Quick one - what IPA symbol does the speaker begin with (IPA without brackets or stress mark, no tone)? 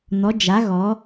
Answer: n̪